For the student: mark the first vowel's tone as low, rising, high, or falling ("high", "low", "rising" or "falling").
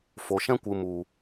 low